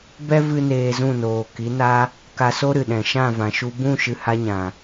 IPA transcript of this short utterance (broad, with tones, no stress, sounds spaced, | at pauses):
b ɛ˦ v ɨ˦ n eː˧ z ũ˦˨ n oː˨ k i˨˦ n a˦ | k a˧ s o˦ ɾ ɨ˨ ɗ ɛ̃˨ ʃ ã˦˨ v ã˨ ʃ u˧ b ũ˦˨ ʃ ɨ˧ h a˦ ɲ ã˨